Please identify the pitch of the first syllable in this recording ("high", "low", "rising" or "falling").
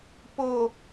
low